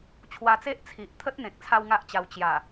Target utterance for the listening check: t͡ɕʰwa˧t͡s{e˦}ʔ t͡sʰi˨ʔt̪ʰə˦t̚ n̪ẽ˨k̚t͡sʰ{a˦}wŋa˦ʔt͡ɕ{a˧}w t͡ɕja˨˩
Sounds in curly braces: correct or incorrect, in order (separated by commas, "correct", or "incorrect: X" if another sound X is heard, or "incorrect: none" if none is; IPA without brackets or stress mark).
correct, correct, correct